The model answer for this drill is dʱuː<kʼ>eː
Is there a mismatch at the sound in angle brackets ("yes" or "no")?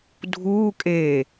no